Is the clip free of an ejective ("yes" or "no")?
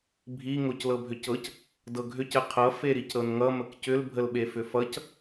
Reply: yes